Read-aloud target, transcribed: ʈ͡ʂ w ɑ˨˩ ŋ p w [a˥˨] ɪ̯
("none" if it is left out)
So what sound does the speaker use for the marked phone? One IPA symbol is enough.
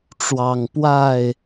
a˥˨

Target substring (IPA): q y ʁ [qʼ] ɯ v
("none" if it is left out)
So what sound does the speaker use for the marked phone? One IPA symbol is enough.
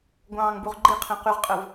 qʼ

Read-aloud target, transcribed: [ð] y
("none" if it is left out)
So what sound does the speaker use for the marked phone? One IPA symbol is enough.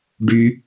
ɖ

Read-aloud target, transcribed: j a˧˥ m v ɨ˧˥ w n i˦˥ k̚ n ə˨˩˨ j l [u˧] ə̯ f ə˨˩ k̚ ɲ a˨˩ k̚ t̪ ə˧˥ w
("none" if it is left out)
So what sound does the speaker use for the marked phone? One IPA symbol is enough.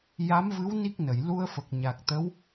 u˧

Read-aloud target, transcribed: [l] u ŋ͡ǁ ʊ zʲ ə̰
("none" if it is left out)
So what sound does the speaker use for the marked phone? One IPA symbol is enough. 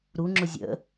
ɾ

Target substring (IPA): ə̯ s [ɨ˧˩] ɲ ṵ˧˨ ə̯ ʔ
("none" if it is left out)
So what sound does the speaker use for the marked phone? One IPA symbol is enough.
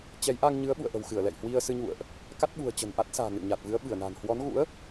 ɨ˧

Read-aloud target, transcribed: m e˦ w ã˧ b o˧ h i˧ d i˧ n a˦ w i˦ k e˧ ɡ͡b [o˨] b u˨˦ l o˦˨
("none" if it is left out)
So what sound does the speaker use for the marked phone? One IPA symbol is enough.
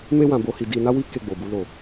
o˨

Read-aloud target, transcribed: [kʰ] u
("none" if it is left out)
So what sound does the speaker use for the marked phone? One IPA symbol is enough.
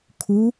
kʰ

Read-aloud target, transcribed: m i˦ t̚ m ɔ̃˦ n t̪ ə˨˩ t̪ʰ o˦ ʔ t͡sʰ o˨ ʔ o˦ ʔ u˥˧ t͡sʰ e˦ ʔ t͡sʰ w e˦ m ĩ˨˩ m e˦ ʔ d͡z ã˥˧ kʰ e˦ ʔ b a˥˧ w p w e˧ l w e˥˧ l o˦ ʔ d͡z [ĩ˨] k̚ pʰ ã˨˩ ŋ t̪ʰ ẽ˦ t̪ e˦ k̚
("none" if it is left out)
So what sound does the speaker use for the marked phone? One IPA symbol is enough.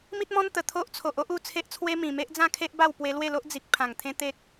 i˨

